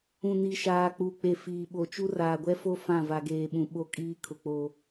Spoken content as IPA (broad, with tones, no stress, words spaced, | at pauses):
ũ˨ni˨ʃaː˨ k͡pu˨ k͡pe˨ fiː˨ ɓo˨t͡ʃu˦ raː˨ɡʷɛ˦fo˦ fã˦˨va˨ɡeː˨ɓũ˨ ɓo˦kʼiː˦kʰʊ˨k͡po˨